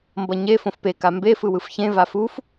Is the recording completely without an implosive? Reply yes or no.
yes